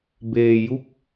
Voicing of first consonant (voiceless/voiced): voiced